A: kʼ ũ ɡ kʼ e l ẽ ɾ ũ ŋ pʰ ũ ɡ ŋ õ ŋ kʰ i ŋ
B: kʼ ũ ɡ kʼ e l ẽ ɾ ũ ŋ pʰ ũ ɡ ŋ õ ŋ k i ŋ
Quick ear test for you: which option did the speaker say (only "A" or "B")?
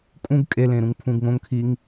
A